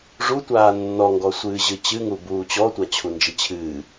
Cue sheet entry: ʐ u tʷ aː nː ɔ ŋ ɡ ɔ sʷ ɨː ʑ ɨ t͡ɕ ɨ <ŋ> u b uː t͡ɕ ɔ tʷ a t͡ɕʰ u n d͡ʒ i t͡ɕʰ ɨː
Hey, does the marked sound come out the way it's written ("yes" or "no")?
yes